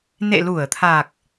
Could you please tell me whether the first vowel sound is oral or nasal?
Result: oral